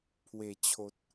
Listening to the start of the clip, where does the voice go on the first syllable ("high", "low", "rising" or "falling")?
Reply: low